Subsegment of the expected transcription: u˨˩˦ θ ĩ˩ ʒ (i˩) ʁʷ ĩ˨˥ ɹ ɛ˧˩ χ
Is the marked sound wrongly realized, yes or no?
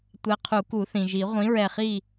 yes